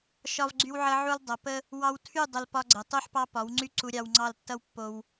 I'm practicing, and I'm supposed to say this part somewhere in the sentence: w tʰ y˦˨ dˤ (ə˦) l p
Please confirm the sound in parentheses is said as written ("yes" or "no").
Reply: no